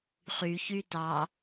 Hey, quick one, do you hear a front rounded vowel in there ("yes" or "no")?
yes